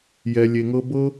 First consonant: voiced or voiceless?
voiced